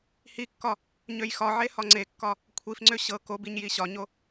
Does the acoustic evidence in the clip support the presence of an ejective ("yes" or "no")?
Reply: no